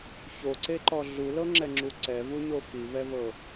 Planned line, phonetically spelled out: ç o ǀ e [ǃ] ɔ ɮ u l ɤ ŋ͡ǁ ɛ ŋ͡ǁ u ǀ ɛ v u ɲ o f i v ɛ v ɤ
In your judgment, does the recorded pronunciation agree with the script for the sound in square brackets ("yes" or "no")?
yes